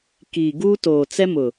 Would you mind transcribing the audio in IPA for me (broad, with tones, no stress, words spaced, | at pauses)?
kiː˨ɡuː˦toː˨ t͡sɛ˦mʊ˨